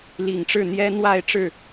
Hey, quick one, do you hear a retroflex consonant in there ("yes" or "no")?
yes